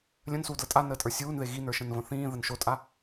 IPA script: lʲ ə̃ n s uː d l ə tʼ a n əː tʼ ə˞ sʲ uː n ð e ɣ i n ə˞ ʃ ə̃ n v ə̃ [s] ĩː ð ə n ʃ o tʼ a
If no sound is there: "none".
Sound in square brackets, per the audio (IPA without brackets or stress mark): θ